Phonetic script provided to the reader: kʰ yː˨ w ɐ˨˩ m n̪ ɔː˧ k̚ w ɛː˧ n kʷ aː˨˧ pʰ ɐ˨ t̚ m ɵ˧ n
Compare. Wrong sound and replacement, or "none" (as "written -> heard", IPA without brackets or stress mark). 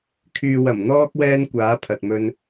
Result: none